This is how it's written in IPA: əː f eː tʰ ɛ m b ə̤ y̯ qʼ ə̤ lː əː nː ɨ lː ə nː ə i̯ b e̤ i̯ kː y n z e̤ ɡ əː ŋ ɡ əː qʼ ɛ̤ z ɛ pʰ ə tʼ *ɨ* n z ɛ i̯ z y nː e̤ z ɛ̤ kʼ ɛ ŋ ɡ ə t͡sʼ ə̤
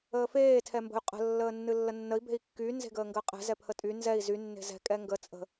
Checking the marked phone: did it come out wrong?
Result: yes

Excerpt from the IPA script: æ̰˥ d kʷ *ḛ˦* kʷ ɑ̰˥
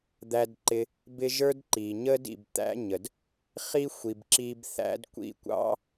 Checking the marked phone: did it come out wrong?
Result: yes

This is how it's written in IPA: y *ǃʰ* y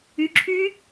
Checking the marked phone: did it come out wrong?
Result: yes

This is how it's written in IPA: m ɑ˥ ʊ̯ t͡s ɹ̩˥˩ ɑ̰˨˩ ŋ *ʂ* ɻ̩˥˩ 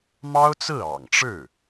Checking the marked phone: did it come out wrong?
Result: yes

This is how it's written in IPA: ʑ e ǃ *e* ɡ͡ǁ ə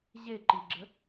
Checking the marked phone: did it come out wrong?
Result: yes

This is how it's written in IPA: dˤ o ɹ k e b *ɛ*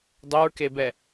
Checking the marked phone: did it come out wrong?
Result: no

